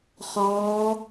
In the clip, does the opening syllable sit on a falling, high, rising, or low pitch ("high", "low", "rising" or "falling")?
rising